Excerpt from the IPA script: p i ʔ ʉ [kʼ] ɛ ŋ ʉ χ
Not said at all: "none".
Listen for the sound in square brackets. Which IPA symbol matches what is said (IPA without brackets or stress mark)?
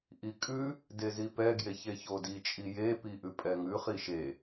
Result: pʼ